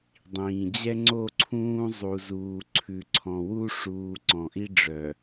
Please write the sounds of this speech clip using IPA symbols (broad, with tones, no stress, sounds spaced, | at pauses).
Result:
dˤ ĩː˨ d͡ʑ ɛ˦ ŋ͡ǀ o˦˨ ǀʰ ũː˦ zˤ u˨ z uː˨ ǀʰ ʉ˨ ǀʰ ɔ̃˨ w u˦ ʂ uː˨ ǀ ɔ̃˨ ʔ i˦ ɖ͡ʐ œ˨